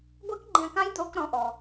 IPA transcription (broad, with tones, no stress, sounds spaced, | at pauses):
ɡʷ ɛ˧˥ k ɡ͡ǃ ɛ̃˧˩ k ã˧˥ j d̪ oː˧˥ k ɾ ɔ̃˩˥ ʔ ɔː˩